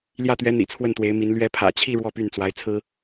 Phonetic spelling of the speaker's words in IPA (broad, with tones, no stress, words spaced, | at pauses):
ljä˥˩t̪ɥɛ˧˥ n̪ḭ˨˩t͡sʰwə˥˩nt̪we˧˥ɪ̯mi˧˥n lɥɛ˧˥pʰä̰˨˩t͡ɕʰi˥˧ ɻwɔ˥˧py˥˩nt͡swa˧˥ɪ̯ t͡sʰɹ̩˥